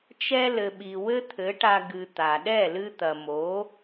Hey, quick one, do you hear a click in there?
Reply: no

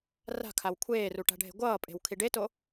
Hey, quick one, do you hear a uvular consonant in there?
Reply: no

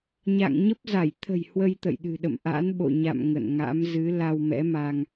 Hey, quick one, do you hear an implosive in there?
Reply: yes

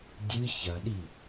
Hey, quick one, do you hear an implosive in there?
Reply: yes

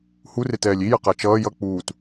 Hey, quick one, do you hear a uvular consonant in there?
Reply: yes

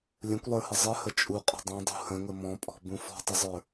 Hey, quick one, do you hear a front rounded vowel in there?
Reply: no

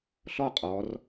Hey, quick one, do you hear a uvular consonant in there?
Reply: yes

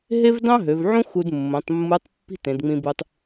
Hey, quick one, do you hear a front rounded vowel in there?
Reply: yes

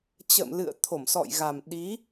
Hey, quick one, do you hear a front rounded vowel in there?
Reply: no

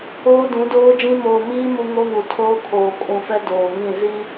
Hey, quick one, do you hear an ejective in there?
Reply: yes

